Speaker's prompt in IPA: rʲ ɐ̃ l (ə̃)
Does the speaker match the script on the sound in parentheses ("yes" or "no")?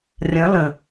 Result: yes